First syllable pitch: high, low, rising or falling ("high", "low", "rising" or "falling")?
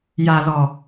low